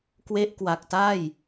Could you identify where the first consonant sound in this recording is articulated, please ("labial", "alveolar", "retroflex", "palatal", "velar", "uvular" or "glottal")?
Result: velar